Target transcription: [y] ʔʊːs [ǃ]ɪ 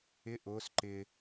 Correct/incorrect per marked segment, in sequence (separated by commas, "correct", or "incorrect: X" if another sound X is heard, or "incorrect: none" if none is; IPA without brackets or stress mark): incorrect: ɪ, correct